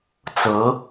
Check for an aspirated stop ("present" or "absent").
absent